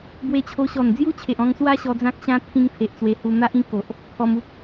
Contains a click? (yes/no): no